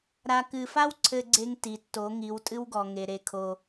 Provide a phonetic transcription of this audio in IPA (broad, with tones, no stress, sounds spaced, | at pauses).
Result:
ɾ a˨ k ɨ˨ f a˦ w ǀʰ ɘ˦ ɡ͡ǀ e˦ ŋ t i˨ tː o˨˦ ŋ i˨˦ w tʼ ɨ˦ w ɡ ɔ˨ ŋ e˨ ɾ e˦ kʰ o˦